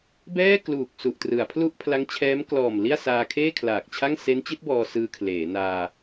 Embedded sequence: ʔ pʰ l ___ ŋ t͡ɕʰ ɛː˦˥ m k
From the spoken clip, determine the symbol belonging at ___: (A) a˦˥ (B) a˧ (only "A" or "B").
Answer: A